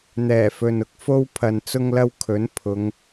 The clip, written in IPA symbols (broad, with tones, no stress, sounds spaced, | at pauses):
n̪ ɛː˨˩ f ɵ˨ n ʊ˧ k̚ f o˥ w pʰ ɐ˧ n t͡s ʊ˥ ŋ l ɐ˥ w kʰ ɵ˨˥ n pʰ ʊ˨˧ ŋ